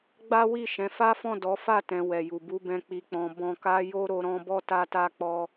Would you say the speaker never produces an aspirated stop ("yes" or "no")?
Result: yes